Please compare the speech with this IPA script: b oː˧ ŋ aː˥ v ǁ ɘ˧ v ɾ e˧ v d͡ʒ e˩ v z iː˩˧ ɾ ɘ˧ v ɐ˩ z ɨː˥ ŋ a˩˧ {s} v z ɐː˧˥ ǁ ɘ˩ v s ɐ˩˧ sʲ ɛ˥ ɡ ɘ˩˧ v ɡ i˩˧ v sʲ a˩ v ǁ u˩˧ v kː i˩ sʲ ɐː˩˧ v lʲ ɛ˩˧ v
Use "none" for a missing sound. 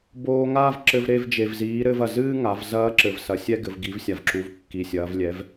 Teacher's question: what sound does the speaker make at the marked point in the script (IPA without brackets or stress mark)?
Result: none